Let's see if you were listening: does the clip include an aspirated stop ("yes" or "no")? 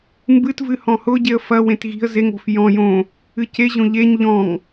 no